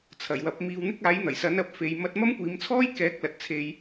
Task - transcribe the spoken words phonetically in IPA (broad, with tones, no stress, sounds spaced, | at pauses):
t͡sʰ ɐ˨˩ j w ɐ˨˥ p̚ m iː˧ w n̪ ɪ˥ k̚ aː˨˥ j n̪ ɐ˨˩ j s ɐ˨˥ n ɐ˨˥ p̚ f e˨˧ j m ɐ˧ t̚ m ɐ˥ m kʷ iː˨˧ m t͡sʰ ɔː˥ j k ɛː˨˥ k̚ l ɐ˨ t̚ t͡sʰ e˧ j